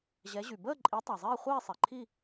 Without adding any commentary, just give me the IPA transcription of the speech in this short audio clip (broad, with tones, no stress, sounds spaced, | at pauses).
ʑ ɛ˨˦ ʑ y˩ b əː˥˧ ǃʼ i˨˦ tˤ a˩ zˤ iː˥˧ χʷ iː˥˧ sˤ e˩ ǃʰ i˥˧